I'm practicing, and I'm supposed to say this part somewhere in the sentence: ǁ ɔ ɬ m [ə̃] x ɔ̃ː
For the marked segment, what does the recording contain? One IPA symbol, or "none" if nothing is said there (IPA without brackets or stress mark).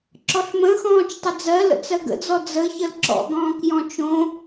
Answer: ə̃